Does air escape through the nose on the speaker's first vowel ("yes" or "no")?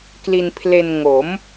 no